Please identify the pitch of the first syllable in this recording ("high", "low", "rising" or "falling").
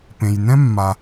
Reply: low